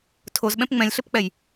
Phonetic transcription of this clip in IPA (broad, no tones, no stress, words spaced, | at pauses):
tʰozɓɛ̃p ŋ͡mɛ̃lʲɬɘpk͡pɛj